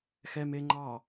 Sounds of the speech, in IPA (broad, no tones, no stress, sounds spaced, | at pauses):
x ɛ m e ŋ͡ǃ ɑ